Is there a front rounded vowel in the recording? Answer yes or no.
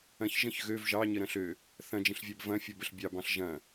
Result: yes